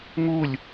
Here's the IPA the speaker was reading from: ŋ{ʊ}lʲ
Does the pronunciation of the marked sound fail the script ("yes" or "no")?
yes